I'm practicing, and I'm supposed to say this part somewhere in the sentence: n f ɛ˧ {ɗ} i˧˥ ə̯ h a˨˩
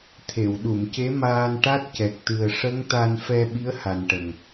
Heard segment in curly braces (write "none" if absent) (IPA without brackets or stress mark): ɓ